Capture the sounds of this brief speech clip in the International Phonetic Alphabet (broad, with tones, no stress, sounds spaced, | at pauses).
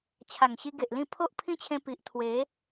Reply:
t͡ɕʰ a˨˩ ŋ ɕ i˧ ɡ e˨ ʔ l ĩ˥˧ pʰ o˦ ʔ pʰ ĩ˦ t͡ɕʰ ẽ˧ p i˨ ʔ t̪ʰ w e˨˦